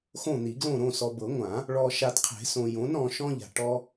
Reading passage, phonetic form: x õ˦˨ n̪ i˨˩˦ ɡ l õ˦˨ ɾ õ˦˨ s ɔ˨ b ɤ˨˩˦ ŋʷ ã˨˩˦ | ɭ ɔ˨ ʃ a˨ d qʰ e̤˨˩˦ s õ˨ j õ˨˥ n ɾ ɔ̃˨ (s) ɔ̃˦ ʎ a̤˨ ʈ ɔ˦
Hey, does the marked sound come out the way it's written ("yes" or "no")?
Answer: no